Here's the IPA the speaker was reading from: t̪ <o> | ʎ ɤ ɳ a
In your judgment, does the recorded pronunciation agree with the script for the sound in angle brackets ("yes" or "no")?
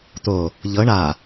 yes